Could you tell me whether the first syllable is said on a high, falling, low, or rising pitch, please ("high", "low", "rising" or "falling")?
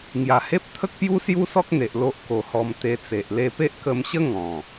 low